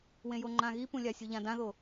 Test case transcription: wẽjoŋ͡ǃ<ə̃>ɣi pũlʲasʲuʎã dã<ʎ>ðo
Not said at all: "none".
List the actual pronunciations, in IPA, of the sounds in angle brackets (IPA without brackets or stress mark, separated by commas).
ã, none